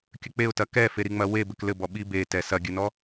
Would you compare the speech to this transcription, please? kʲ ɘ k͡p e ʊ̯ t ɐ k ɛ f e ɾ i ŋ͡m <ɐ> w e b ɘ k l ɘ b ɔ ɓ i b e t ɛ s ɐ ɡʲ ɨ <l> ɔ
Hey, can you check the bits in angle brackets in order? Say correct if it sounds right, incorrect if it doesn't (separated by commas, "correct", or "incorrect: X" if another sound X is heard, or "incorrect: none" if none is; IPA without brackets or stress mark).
correct, incorrect: n